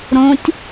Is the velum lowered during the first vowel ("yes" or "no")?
yes